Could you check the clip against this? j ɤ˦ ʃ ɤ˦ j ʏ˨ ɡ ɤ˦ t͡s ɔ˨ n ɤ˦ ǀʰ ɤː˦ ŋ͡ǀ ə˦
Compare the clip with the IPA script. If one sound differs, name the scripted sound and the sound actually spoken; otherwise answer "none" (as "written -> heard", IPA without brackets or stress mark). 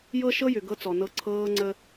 none